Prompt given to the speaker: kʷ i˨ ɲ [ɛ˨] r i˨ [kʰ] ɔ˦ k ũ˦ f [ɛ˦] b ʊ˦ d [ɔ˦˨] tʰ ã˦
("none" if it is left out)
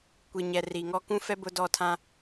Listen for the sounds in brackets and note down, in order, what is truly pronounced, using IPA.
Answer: ɛ˨, ŋ, ɛ˦, ɔ˦˨

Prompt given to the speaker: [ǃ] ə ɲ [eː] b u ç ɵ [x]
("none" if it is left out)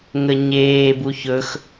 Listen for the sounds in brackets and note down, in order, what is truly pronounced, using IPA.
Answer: ŋ, eː, x

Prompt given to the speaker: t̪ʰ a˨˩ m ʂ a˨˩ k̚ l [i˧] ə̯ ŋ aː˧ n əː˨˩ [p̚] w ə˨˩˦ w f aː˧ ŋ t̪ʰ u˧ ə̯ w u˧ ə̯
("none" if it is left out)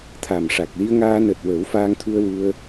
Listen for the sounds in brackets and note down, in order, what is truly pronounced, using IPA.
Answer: i˧, t̚

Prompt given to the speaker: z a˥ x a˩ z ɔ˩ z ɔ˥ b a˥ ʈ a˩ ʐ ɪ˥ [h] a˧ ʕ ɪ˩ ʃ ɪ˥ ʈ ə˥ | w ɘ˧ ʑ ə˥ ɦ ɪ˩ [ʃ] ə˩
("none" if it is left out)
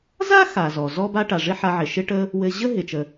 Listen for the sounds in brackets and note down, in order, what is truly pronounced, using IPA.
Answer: ħ, t͡ʃ

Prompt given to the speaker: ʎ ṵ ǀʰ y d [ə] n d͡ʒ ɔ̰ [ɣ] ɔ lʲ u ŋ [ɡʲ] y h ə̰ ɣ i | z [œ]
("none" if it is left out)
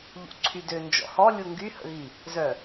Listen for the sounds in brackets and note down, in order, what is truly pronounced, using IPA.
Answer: ø, h, ɡ, œ

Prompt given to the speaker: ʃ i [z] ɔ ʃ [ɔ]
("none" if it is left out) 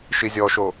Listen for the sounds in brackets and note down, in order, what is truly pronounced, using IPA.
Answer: zʲ, o

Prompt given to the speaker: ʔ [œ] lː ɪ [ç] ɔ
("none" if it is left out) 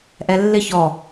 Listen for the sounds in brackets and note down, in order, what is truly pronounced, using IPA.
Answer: ɛ, ç

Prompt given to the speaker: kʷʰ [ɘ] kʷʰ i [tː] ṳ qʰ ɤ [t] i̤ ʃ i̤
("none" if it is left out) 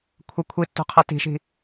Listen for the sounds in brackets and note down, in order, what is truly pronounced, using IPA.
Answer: ɘ, tː, t

